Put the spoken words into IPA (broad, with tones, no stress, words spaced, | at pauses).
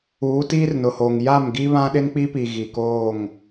uː˨˦tiː˦rnʊ˨hoː˨ŋ ja˦˨mɡi˦ βã˦ɗɪ˦nk͡pi˦pi˨ ɣi˨koː˦˨ŋ